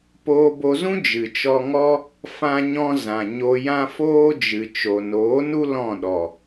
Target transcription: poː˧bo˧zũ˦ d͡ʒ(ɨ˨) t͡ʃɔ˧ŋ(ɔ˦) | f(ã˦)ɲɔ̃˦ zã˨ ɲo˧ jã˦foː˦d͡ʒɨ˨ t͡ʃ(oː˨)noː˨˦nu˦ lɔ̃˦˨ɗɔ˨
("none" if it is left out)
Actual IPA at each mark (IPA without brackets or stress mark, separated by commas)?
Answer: ɨ˨, ɔ˦, ã˦, o˨